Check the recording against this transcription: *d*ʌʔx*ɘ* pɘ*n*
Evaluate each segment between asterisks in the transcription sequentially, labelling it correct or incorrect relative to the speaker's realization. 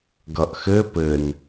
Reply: incorrect, correct, correct

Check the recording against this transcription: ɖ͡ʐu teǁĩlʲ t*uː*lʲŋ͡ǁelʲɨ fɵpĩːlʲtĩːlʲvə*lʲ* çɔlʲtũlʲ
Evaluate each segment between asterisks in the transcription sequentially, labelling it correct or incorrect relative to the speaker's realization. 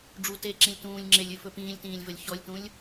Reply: incorrect, correct

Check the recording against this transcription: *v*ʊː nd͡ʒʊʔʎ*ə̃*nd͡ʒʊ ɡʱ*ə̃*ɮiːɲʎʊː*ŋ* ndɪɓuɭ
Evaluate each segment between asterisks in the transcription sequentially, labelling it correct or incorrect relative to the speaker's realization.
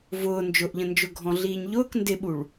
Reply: correct, correct, incorrect, incorrect

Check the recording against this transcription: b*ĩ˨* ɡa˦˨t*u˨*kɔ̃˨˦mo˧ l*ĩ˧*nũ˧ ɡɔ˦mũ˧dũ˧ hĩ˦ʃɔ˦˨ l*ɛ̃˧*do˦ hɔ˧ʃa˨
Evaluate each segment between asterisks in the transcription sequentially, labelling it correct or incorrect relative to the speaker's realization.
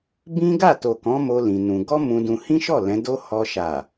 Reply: incorrect, incorrect, correct, incorrect

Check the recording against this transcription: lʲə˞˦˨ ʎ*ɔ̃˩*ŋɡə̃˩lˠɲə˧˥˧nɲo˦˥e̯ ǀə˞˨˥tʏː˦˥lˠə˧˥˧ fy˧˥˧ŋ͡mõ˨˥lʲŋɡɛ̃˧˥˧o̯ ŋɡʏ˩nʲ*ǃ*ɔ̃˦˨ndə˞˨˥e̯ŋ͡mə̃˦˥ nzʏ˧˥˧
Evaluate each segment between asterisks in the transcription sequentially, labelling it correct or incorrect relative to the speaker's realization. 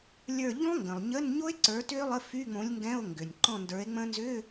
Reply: incorrect, correct

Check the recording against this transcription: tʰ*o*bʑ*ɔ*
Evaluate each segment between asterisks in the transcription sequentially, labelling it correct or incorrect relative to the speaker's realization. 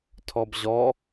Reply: incorrect, correct

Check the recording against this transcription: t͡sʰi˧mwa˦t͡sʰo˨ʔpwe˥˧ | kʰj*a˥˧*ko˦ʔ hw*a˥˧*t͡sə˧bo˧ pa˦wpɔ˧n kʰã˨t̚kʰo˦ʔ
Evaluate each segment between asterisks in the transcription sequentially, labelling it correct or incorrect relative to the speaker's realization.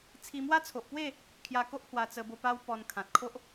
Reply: incorrect, incorrect

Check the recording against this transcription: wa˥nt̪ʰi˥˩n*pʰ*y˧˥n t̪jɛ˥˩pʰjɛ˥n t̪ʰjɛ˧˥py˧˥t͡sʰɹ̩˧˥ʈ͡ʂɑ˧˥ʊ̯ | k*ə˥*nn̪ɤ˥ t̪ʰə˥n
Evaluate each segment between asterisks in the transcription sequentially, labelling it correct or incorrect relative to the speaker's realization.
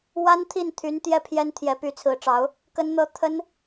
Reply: incorrect, correct

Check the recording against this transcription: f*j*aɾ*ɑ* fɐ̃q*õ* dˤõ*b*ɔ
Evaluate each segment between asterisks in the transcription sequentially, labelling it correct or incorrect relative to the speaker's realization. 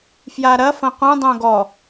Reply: correct, incorrect, correct, incorrect

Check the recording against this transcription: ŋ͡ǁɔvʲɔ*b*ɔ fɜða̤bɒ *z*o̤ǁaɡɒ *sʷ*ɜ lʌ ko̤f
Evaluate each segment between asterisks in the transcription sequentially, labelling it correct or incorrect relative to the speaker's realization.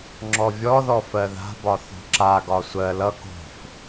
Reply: incorrect, incorrect, correct

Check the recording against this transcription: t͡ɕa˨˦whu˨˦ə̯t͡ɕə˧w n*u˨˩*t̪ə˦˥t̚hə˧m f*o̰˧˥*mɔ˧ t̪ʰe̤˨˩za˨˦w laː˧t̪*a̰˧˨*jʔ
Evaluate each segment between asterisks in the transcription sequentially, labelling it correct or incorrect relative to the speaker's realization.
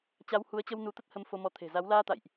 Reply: incorrect, incorrect, correct

